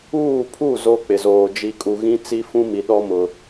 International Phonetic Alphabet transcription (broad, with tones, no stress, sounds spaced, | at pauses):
uː˦˨ pʰ u˦˨ z o˦ k͡p ɪ˨ z oː˨ d͡ʒ i˨ kʼ u˨ ɣ ĩ˦ t͡s i˦ f ũ˦ m i˨ ɗ ɔ˦ m ʊ˨